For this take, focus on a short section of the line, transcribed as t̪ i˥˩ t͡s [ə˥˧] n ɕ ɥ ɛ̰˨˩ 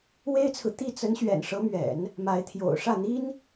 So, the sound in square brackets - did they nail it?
no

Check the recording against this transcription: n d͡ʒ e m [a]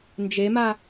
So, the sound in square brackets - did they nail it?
yes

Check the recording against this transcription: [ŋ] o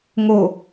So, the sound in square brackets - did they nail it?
yes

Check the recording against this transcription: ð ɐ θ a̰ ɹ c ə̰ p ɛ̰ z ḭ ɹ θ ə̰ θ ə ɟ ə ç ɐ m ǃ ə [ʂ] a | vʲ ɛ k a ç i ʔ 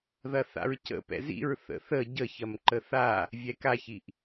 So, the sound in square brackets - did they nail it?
no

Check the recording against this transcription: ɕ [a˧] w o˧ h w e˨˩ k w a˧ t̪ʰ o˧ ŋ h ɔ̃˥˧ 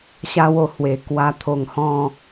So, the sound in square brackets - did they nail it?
yes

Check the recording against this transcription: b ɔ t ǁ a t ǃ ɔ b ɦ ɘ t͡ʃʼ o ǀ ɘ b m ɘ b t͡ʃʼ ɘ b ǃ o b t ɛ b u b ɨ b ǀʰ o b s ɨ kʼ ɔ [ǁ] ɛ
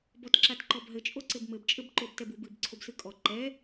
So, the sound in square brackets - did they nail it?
no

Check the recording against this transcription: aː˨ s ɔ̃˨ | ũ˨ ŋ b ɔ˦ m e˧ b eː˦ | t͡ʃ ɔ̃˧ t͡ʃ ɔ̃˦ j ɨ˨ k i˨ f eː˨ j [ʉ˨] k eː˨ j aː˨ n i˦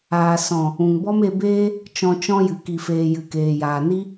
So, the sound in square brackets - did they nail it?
no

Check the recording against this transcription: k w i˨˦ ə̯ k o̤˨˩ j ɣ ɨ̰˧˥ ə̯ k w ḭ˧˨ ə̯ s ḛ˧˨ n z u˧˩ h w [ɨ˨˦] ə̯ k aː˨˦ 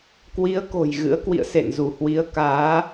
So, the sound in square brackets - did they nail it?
no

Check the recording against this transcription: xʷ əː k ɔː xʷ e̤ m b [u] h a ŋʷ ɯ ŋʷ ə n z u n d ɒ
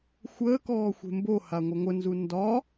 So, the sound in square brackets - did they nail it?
no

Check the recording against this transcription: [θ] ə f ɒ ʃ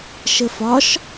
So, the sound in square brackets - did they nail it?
no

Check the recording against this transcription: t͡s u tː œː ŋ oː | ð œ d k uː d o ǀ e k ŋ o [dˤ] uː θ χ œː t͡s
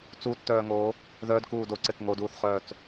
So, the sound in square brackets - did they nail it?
no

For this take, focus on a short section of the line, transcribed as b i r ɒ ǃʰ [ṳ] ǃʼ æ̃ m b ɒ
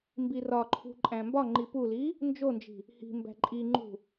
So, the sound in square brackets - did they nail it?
yes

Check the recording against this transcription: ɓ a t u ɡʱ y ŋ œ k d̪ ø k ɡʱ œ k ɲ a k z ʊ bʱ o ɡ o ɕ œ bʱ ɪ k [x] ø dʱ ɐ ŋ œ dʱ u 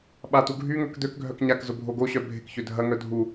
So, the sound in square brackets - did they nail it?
no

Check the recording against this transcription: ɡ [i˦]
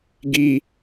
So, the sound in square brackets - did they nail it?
yes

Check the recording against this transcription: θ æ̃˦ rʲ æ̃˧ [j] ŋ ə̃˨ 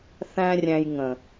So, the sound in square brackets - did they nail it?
yes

